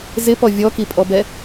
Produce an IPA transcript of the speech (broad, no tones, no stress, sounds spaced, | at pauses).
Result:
z ɪ p ɔ vʲ ɔ k i pʼ ɔ b ɛ